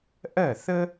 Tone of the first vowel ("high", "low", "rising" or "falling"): falling